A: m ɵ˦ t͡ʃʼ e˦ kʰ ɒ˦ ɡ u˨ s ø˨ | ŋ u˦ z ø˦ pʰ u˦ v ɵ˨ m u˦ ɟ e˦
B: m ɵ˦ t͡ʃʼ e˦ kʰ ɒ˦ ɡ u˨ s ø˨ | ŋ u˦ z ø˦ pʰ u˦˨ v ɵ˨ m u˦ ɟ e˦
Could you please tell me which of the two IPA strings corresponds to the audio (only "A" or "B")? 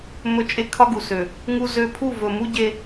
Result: B